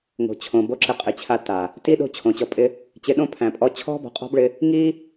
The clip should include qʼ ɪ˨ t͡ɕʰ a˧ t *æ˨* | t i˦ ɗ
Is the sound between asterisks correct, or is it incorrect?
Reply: incorrect